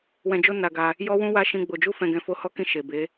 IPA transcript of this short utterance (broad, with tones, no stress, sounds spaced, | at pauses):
w ɛ̃˧ d͡ʒ o˦ n a˧ ɡ a˧ | j ɔ˦ w ũ˦ w a˦ ʃ ĩ˧ ɡ͡b o˨ d͡ʒ u˧ f ɛ̃˧ ɡ ɛ̃˧ f o˧ h ɔ˦ k ĩ˧ ʃ e˨ b e˨˦